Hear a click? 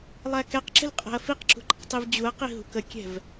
yes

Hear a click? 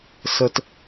no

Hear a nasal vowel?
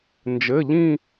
yes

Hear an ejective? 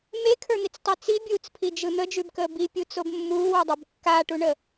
no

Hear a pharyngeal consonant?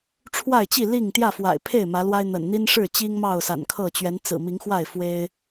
no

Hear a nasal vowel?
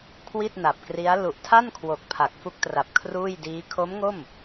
no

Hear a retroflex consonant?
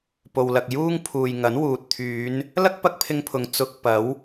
no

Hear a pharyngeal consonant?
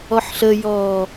yes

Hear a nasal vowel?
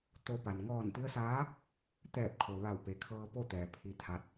no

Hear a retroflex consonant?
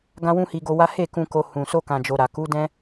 no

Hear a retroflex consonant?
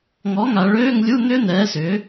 yes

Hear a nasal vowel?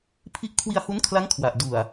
no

